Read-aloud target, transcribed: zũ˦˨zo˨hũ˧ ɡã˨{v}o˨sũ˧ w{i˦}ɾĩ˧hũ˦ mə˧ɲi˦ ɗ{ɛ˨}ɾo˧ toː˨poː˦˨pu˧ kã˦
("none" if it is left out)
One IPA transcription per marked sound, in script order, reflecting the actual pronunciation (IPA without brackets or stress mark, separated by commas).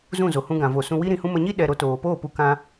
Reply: v, i˦, ɛ˧